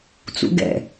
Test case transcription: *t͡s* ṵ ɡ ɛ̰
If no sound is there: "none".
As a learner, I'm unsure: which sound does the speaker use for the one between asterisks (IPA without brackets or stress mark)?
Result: t͡s